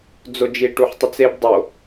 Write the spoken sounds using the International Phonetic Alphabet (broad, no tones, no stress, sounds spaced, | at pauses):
d͡z o d͡ʒ i ʈ u ħ tˤ i t͡s e b dˤ o